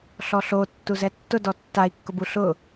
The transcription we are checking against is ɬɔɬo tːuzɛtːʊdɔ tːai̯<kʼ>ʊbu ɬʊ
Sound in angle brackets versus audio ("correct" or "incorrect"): incorrect